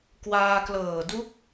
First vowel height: low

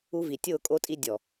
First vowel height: high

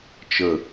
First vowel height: mid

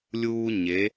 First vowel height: high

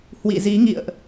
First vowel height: high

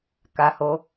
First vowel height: low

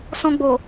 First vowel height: mid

